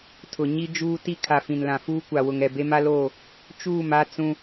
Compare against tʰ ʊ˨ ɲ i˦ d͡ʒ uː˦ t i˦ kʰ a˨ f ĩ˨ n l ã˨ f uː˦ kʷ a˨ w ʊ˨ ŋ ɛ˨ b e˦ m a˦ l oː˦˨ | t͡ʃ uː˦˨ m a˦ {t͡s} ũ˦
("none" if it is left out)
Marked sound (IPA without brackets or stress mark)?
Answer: t͡s